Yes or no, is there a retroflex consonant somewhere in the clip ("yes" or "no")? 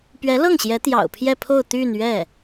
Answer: no